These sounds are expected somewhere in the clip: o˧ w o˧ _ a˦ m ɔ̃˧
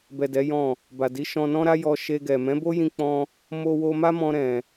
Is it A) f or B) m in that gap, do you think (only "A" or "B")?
B